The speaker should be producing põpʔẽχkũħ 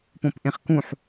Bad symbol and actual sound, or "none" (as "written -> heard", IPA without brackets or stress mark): none